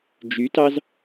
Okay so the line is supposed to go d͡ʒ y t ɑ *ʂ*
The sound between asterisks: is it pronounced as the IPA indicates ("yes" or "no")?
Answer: no